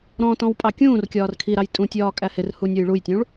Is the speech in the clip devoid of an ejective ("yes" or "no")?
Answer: no